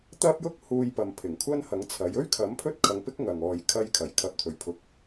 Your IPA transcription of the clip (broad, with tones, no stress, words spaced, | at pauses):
t̪ɐ˥p̚jʊ˥k̚ huː˧jpɐ˨mpʰɪ˨˩ŋ kʷʰɐ˥nhɐ˨˥ŋt͡sʰɐ˨˥j ɵ˥ɥkʰɐ˨˥m pʰɵ˥t̚kʰɐ˨˧ŋpɪ˥k̚ ŋɐ˨ŋɔː˧j kʰɐ˧jkʰɐ˨˩j kʰɐ˨p̚t̪ʰɵ˨˩ɥpʰʊ˨˥k̚